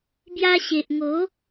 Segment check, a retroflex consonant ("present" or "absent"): absent